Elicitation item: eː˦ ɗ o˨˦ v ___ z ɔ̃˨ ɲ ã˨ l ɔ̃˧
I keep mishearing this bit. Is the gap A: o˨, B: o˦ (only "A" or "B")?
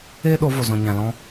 A